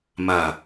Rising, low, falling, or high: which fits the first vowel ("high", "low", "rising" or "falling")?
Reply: low